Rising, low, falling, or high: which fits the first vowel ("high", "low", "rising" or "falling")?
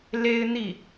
high